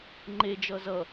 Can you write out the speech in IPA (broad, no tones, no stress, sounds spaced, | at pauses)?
ŋ͡ǃ e d͡ʒ ʌ z ʌ